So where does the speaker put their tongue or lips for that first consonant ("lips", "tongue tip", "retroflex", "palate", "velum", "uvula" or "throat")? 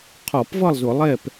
uvula